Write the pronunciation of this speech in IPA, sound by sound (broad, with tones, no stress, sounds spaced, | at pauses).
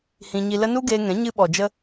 h ĩ˧ ɲ i˧ l ə˦ n u˦ ɡ eː˧ ŋ ɛ̃˨˦ ɲ ɨ˧ ɓ ɔ˨ d͡ʒ ə˧